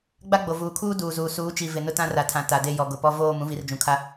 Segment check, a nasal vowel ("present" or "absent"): present